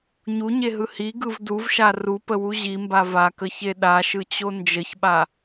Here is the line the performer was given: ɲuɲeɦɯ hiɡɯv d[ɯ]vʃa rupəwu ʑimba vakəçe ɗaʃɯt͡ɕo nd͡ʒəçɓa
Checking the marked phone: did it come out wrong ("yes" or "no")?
yes